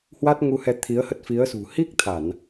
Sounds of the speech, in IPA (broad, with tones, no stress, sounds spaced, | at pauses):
h w a˦˥ t̚ ŋ u˧ h ɛ˧ t̪ʰ i˨˦ ə̯ h ə˦˥ t̚ f i˨˦ ə̯ s ṳ˨˩ h i˦˥ k̚ t̪ʰ a˧˩˨ n